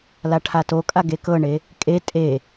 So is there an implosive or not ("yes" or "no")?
no